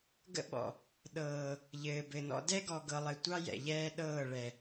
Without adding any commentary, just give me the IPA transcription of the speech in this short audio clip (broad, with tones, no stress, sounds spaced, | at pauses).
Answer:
ɡ ə̰˦ ɓ ɔ̰˨ | ɗ ɤː˨ | ʎ ɘː˨ b ɘ˨ n ɔ̰˦ d ɛ˦ ɡ ɔ˨ ɡ ɤ˨ lˠ ɘ˨ tʷ ɑ˦ j ɛ̰˨ ʎ ɛː˦ ɗ ɤː˦˨ ɭ ɛ˨